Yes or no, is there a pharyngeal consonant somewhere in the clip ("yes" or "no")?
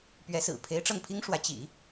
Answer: no